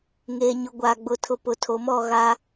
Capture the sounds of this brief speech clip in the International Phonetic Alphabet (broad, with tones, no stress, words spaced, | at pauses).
ŋeː˨ɲʊ˨ ɡʷaː˨ ɡ͡bʊ˨tʰʊ˨ pʊ˨tʰo˨mɔ˦˨ɣa˦